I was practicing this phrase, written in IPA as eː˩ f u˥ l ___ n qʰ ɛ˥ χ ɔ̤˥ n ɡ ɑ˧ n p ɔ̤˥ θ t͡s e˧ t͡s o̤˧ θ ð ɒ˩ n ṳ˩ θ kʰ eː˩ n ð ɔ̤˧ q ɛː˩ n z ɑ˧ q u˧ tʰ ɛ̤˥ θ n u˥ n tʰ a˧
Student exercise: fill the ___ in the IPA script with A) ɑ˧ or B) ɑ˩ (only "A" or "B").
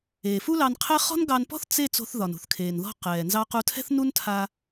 A